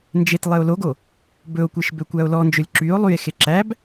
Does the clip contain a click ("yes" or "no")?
yes